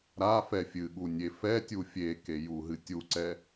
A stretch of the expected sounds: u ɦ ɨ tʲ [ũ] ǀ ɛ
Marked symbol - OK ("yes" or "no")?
no